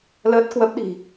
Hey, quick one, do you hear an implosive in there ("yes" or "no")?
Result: yes